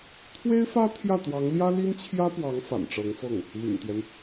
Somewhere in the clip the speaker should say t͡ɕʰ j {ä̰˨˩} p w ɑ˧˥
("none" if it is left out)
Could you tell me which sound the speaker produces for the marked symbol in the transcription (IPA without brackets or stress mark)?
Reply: ä˥